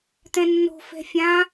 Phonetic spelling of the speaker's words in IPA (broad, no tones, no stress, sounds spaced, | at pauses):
t̪ ɛ̃ nː o̤ f ɛ̤ fʲ ã